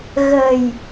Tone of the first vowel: low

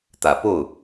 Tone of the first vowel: low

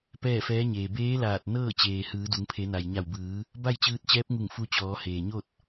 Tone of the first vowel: falling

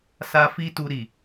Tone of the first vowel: high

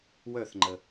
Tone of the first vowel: falling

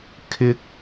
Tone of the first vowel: high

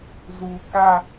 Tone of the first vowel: low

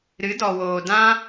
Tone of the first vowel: rising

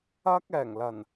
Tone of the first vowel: high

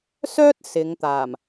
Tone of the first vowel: high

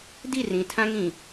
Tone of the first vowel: falling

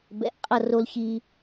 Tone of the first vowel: low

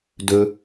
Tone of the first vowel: low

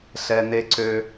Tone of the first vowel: high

